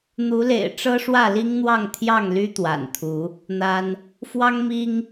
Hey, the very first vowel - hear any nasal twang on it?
no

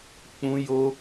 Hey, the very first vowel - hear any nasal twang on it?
yes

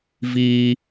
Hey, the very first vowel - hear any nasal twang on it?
no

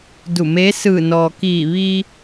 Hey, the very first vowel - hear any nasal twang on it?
no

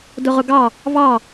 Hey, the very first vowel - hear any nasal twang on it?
no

